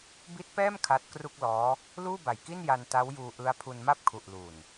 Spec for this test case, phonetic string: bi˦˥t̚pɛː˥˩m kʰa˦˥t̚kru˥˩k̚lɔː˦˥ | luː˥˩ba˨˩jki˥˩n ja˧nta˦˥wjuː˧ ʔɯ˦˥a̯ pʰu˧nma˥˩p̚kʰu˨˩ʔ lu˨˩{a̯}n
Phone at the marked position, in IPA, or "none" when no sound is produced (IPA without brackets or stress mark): none